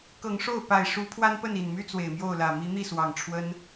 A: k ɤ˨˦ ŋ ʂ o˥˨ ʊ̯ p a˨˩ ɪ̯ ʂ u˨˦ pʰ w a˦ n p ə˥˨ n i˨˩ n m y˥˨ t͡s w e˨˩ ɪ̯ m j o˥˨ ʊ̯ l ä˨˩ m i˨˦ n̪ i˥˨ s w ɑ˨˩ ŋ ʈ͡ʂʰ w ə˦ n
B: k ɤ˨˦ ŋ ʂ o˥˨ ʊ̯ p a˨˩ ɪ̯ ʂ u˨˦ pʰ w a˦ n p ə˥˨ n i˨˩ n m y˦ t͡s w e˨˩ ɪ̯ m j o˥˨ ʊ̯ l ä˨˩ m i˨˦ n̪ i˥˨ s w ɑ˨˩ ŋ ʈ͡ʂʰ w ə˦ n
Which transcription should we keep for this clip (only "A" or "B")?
B